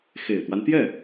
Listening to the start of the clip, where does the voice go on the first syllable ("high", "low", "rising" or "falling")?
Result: low